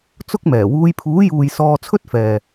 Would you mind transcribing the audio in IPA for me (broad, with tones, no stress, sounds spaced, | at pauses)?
t͡s ʊ˥ k̚ m ɛː˨˩ w uː˨˧ j pʰ uː˨˥ j uː˨ j s ɔː˧ t͡sʰ ɵ˥ t̚ f ɛː˨